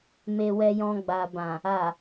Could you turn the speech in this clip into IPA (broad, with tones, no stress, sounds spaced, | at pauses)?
m e˧ w ɛ˧ j ɔ̃˧ ɡ͡b a˨ b ã˨ | a˨